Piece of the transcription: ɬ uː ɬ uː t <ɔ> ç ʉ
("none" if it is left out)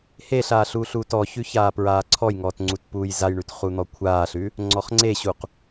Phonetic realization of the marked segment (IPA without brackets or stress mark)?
ɔ